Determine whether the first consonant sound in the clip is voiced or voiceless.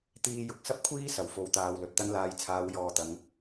voiceless